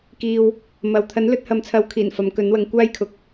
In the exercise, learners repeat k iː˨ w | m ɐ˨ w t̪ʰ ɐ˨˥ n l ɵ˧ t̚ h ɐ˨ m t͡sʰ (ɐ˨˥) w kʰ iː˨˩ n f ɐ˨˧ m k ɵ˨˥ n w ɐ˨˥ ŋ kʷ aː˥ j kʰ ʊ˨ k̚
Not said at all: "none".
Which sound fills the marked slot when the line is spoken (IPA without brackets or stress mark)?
ɐ˨˥